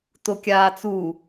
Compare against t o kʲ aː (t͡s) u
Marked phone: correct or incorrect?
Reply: correct